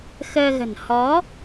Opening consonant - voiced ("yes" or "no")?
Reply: no